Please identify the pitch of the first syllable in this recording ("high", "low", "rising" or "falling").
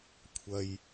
high